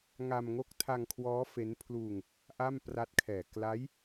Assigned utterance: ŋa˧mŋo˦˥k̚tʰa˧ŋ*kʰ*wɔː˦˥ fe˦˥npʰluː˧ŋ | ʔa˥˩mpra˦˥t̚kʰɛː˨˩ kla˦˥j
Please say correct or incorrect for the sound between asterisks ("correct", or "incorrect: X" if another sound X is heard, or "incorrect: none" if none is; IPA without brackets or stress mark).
correct